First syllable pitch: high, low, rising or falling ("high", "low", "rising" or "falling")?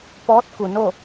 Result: rising